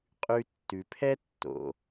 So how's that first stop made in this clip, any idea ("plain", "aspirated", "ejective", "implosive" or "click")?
ejective